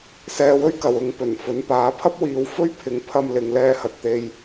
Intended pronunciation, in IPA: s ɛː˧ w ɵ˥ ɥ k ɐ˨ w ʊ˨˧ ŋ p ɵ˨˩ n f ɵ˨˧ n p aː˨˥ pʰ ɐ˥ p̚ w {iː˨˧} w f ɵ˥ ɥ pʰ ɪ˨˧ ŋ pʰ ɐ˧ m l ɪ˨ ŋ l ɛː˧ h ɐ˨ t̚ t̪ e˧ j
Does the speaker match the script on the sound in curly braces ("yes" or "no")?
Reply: yes